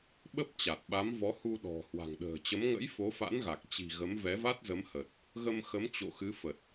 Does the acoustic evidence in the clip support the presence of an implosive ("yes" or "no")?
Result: yes